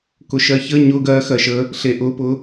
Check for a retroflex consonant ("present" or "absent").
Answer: absent